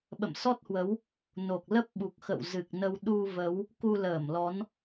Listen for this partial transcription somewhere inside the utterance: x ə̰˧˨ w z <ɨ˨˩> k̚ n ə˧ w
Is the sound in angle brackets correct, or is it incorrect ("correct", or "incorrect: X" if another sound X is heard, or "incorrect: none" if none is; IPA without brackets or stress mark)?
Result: correct